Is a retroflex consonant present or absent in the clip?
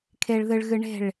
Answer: present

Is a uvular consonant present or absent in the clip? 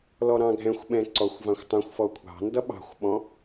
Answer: absent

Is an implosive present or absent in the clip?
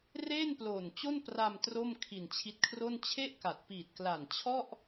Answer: absent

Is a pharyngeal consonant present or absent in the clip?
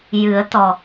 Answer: absent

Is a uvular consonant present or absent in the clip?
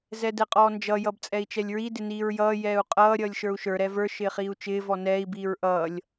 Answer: present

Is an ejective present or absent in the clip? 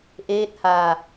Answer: absent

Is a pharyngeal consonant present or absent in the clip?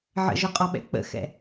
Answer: present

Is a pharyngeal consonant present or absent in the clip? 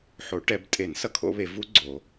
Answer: present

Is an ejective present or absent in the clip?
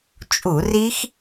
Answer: present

